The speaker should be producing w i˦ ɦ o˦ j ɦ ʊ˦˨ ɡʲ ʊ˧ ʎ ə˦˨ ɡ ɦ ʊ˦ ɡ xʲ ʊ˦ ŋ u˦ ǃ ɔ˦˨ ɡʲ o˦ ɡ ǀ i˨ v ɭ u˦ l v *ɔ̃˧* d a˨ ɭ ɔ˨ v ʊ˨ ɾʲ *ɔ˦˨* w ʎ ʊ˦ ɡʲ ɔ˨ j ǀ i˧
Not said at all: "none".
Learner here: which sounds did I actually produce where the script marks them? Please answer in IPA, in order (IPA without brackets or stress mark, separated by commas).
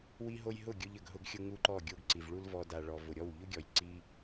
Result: ɔ˧, ɔ˦˨